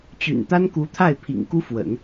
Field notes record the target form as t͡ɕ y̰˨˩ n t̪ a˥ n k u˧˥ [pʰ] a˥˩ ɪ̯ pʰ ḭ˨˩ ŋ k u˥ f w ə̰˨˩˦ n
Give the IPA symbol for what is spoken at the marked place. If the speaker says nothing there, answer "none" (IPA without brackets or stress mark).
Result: t̪ʰ